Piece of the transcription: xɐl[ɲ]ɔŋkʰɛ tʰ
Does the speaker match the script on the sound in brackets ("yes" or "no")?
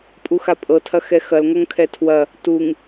no